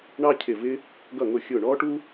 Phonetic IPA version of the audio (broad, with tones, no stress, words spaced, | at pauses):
ɳɑ˥cʰɪ˦˨ vɪ˥ | ɡʌ˦˨ŋʊ˦˨xʲʊː˦˨ ɳɔː˥ʈu˥